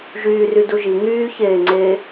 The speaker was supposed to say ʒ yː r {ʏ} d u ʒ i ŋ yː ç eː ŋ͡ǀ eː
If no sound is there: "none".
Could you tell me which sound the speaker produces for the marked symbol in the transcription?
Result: y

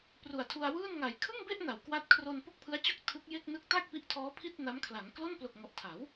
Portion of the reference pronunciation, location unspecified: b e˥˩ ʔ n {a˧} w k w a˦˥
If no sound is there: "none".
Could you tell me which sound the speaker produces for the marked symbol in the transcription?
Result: a˩˦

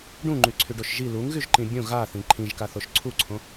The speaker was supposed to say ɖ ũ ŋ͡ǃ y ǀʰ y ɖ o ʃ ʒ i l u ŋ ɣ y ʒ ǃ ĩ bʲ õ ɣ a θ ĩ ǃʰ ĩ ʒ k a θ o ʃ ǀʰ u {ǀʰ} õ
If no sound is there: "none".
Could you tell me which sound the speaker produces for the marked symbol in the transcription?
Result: ǀʰ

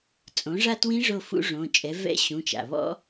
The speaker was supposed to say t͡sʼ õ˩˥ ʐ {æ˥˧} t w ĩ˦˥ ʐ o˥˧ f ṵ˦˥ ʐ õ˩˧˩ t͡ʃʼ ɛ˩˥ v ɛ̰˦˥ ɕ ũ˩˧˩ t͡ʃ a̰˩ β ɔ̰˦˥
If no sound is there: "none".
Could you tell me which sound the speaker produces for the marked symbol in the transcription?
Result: a˥˧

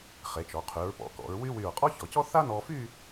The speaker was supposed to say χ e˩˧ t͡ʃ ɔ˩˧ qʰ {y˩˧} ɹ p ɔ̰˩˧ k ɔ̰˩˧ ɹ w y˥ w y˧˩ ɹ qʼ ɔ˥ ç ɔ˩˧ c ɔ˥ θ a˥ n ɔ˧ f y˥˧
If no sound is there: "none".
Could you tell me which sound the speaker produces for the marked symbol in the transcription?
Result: y˩˧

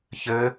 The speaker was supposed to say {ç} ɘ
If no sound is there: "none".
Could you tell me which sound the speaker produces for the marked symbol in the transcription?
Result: ç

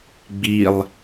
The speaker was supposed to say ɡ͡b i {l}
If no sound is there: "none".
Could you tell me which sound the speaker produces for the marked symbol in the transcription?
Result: lˠ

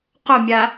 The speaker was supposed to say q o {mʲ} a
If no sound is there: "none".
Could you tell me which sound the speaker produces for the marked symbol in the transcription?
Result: mʲ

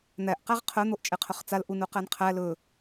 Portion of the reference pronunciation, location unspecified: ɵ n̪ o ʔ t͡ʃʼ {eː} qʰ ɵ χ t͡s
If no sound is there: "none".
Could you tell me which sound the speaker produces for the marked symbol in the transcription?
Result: e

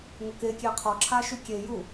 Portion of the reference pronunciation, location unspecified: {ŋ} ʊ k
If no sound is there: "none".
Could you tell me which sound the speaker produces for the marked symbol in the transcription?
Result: ŋ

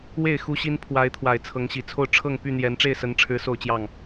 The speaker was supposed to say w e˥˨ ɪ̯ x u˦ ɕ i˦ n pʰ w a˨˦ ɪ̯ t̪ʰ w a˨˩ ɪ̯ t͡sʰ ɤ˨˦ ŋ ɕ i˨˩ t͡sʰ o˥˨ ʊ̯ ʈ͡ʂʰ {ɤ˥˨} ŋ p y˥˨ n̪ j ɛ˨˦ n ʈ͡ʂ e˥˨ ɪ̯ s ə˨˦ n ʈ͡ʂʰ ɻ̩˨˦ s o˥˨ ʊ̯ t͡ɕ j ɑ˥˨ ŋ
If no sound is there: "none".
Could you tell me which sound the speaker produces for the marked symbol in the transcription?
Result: ɤ˥˨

